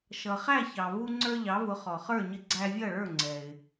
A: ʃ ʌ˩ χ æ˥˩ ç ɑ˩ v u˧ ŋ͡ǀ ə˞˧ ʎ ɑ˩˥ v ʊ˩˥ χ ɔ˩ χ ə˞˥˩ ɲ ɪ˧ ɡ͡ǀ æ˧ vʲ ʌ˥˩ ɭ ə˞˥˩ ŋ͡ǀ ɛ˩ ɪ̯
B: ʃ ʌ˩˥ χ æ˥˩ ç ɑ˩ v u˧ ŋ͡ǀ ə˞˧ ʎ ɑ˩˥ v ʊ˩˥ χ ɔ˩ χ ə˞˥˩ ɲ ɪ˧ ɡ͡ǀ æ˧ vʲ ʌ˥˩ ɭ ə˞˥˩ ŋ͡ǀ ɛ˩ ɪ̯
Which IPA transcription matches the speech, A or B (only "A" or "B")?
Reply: A